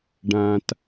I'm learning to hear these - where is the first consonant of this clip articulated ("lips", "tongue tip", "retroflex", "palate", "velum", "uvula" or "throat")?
retroflex